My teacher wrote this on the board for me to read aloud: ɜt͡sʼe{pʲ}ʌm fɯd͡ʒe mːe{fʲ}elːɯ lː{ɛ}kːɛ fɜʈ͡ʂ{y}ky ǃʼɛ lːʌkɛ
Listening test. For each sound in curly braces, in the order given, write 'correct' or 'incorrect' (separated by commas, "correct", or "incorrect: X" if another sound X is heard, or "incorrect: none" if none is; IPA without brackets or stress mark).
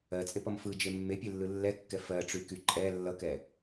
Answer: incorrect: p, incorrect: pʲ, correct, correct